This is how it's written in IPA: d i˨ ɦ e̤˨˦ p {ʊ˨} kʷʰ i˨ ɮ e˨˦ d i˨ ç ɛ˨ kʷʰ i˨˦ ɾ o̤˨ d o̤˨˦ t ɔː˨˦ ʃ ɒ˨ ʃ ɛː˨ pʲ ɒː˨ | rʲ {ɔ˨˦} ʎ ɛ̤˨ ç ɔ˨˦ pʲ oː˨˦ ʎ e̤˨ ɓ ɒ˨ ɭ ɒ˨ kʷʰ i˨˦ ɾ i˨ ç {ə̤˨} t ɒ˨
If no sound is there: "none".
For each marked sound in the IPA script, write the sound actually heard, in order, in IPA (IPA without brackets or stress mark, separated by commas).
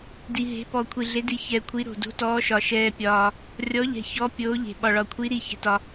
ɔ˨, ɔ˨˦, ɛ̤˨